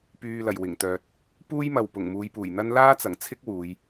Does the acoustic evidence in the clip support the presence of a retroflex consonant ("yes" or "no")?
no